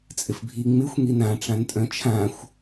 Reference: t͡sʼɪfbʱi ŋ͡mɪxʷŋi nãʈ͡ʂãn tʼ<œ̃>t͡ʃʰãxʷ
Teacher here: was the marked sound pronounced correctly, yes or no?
yes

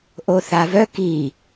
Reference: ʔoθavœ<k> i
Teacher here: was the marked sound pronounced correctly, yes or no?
yes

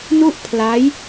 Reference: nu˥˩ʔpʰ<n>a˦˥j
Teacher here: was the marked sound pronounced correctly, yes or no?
no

